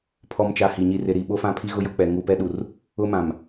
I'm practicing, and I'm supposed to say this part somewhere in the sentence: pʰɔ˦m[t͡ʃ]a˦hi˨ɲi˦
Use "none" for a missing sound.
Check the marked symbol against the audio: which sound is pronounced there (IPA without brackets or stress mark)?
t͡ʃ